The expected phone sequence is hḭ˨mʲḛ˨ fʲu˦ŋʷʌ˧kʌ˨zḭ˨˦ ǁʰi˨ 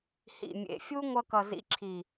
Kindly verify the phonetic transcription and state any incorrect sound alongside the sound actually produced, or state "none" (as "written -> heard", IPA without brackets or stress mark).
none